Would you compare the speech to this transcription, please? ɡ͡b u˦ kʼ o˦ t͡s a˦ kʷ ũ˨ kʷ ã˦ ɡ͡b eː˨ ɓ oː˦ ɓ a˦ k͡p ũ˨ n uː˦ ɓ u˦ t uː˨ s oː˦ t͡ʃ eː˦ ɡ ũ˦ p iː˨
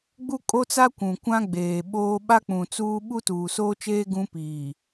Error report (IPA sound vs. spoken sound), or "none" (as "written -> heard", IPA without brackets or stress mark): n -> t͡s